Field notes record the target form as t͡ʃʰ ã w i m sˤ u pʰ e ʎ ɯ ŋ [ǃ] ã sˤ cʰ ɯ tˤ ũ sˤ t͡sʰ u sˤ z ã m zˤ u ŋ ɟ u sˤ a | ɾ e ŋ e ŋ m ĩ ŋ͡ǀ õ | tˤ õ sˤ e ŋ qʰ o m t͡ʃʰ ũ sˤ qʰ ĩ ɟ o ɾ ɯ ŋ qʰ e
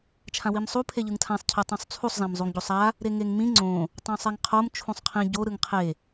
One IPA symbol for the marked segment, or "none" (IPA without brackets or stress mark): tʰ